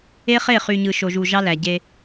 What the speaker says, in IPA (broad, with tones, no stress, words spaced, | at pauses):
e˦χe˦˨χy˨ɲɯ˨ ʃo˨ʒu˨ ʒɑ˦læ˨ɟe˦